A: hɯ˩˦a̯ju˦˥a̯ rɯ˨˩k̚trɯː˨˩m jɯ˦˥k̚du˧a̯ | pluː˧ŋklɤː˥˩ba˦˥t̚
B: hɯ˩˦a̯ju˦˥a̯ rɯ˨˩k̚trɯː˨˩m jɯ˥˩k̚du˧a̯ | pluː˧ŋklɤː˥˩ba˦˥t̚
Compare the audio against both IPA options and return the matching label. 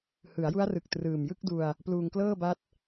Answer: B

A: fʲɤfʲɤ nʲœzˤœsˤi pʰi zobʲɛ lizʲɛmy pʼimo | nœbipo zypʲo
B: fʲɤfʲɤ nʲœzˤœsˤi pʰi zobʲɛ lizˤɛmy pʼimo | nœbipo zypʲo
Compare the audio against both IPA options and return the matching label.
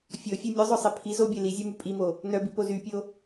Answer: A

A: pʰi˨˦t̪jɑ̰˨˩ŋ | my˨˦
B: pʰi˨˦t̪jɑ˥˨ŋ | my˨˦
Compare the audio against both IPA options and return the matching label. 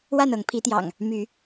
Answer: A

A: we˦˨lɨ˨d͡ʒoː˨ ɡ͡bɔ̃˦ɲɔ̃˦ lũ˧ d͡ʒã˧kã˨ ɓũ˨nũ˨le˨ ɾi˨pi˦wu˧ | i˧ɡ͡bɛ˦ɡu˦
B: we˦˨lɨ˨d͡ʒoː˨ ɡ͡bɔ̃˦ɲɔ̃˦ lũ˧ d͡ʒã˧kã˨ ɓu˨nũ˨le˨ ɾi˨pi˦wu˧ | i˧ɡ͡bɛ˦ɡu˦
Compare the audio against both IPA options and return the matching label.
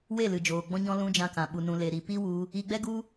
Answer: B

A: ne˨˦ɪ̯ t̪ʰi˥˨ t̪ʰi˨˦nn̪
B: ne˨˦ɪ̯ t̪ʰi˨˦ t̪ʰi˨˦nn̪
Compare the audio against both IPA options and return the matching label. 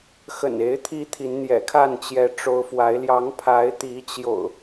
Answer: B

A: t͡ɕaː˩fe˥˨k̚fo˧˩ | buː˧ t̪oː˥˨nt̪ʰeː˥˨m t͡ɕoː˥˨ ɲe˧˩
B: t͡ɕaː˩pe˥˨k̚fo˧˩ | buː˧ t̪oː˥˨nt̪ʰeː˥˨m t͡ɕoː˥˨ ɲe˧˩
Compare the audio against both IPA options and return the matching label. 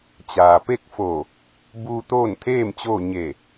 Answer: B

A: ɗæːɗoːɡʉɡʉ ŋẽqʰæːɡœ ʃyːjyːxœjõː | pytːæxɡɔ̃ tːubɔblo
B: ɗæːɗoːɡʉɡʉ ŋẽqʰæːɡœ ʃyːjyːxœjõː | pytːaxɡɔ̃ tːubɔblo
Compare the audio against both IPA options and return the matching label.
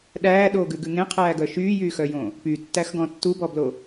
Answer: A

